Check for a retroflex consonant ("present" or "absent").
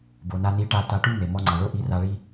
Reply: present